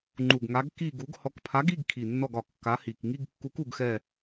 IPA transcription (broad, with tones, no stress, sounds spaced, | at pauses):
ŋ͡ǃ u˨˩ ɡ ŋ a˨˥ ɡ k i˦˨ ɡ u˨˥ ɡ h ɔ˨˥ k pʰ a˨˥ ɡ i˧˥˧ ɡ kʰ i˨˩ nː ɔ˦˨ ɡ ɒ˨˩ kː a˨˥ h i˨˩ k ŋ i˧˥˧ ɡ kː u˨˥ k u˦˨ ɡ x ɛ˦˨